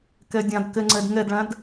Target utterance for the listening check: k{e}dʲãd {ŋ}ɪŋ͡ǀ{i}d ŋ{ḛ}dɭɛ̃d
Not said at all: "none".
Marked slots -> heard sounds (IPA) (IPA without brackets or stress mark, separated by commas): e, k, e, e